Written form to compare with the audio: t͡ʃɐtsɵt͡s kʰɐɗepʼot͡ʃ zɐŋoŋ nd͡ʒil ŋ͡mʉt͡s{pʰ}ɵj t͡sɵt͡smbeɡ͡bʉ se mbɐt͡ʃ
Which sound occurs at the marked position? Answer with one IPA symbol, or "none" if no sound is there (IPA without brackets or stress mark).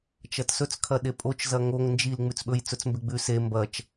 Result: ɓ